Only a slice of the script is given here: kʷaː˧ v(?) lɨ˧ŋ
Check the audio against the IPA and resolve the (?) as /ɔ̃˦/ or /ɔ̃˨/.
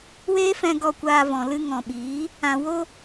ɔ̃˨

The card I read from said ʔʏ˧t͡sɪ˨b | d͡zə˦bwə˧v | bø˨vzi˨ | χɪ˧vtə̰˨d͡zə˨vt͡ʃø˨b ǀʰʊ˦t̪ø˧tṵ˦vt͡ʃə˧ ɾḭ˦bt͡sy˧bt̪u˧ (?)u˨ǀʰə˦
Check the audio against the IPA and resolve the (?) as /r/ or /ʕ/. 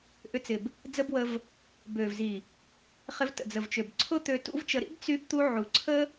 ʕ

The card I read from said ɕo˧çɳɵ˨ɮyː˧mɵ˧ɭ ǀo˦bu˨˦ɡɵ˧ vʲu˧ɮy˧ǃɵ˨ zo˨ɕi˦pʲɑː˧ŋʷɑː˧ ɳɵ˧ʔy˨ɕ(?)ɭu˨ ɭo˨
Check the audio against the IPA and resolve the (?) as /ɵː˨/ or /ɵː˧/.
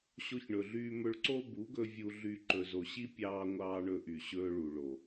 ɵː˧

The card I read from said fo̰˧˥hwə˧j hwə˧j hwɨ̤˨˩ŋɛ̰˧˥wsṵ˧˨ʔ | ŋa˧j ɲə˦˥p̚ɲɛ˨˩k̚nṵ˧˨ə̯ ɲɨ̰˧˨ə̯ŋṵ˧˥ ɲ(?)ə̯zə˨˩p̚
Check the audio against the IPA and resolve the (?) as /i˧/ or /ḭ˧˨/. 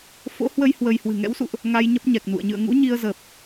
i˧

